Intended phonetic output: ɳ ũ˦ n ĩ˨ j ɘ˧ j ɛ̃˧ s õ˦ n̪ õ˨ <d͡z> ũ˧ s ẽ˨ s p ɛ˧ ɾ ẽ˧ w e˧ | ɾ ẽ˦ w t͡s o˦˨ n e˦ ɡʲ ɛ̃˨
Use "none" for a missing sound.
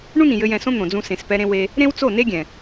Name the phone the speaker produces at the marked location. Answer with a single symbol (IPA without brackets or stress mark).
d͡z